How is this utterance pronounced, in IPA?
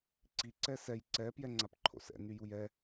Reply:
ǀ i ǀ ɛ s ɛ j ǀ ɛ p j ɛ ŋ͡ǀ a p ǃʰ o̰ s ɛ̰ n y j u j ɛ

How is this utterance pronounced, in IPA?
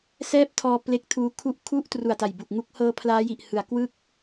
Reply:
s ɛː˥˩ p̚ tʰ ɔː˧ p l e˦˥ k̚ tʰ uː˦˥ kʰ u˥˩ ʔ kʰ u˥˩ ʔ t r u˨˩ a̯ t a˨˩ j b u˨˩ k̚ ŋ u˦˥ k̚ h ɤː˧ pʰ l aː˦˥ j i˨˩ ʔ h ɯ˩˦ a̯ k w ɯ˥˩ k̚

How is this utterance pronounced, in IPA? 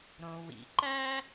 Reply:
ɾ õ˩ w ḭ˩ ǃ æ˥

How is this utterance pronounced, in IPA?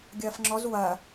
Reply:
ɡʲ ɐː f ŋ͡ǁ ɔ z w ɐː

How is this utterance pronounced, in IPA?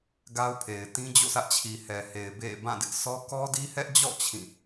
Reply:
ɡ a˦ ʊ̯ pʰ e˨ ɪ̯ t ĩ˦ d͡ʑ o̰˦˨ sʰ ä˦ ʔ t͡ɕʰ i˨ h ɛ˨ h e˨ ɪ̯ b ḛ˦˨ b ã˦˨ d ɪ˦ ʔ sʰ ɔ˦ k ɔ˦ d i˦ h ɛ˦ ʔ d͡ʑ ɔ̰˦˨ t͡ɕʰ ĩ˦˨

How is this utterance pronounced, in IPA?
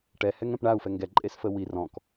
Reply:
ʈ ɛ h ɛ ŋ ɛ̃ p ɳ a u̯ f ɛ ŋ ɡ ɛ ǃʼ e s f ə w i r ɔ̃ k

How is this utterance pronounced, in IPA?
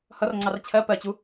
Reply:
h ʌ r ŋ͡ǀ ɑ r t͡ɕʰ ɜ p ɜ t͡ɕ u

